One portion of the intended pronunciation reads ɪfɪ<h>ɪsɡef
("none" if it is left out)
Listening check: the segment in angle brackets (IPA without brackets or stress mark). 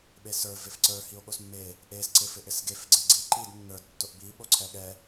ʔ